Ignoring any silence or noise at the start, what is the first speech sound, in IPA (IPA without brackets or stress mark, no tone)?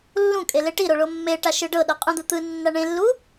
lː